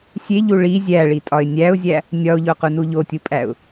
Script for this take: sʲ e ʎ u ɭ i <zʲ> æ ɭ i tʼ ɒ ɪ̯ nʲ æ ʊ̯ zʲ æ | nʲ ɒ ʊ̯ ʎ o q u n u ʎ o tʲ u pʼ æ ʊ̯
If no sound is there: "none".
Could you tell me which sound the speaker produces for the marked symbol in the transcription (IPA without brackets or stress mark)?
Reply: zʲ